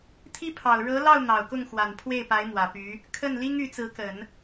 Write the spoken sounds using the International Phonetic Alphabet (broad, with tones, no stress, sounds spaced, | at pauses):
t̪ʰ i˥ pʰ ɑ˨˩ ʊ̯ ɻ ɤ˧˥ l ɑ˥˩ ʊ̯ n̪ ɑ˨˩ ʊ̯ k ʊ˥˩ ŋ x w a˨˩ n pʰ w e˥˩ ɪ̯ p a˧˥ ɪ̯ m w ä˨˩ p y˧˥ | kʰ ə˥˩ n l i˥ ŋ y˧˥ t͡s ɹ̩˧˥ k ə˨˩˦ n